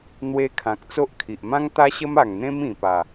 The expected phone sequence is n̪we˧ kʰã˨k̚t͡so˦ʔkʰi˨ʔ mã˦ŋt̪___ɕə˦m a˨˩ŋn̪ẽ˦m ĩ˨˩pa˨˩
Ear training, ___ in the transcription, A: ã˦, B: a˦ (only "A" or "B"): B